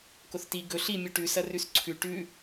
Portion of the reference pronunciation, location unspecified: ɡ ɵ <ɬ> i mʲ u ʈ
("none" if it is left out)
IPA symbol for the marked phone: ɬ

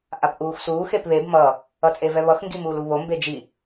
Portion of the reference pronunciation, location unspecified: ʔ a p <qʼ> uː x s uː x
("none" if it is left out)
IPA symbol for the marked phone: ʔ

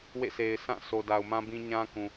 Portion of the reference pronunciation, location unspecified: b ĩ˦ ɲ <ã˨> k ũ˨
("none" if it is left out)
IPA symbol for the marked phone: ã˦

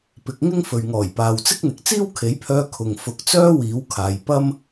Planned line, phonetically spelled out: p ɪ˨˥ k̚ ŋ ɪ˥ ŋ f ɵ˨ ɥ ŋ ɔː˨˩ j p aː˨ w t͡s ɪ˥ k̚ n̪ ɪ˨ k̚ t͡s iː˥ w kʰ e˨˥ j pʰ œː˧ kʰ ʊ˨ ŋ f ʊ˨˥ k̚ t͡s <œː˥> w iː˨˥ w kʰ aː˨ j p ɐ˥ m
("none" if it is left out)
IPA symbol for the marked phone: œː˥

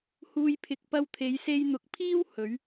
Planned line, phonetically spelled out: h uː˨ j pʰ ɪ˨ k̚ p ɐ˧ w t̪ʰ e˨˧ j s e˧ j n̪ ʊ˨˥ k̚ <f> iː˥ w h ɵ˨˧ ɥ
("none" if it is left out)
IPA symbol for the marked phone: pʰ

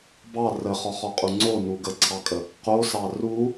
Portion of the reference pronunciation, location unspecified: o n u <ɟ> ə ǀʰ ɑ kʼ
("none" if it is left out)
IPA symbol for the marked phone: ɡ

